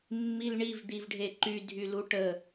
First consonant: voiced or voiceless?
voiced